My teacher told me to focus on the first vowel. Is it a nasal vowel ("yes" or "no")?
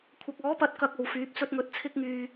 no